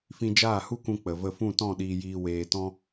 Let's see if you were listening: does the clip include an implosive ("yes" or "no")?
yes